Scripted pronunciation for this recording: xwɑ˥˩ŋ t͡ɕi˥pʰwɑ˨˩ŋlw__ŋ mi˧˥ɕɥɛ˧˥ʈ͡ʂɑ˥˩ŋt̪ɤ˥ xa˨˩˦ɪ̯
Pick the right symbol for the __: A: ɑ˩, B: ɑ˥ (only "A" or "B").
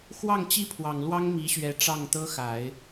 B